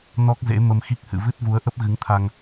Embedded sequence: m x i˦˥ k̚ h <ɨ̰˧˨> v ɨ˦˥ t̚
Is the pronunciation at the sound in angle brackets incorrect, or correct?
correct